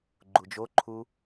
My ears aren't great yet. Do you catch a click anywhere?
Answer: yes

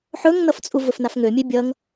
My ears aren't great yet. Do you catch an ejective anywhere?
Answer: yes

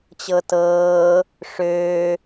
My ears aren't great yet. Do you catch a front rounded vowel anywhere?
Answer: yes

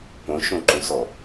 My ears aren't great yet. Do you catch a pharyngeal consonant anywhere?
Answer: no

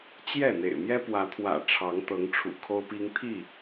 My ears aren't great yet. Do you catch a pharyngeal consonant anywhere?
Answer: no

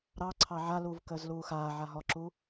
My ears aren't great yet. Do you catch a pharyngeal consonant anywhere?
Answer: yes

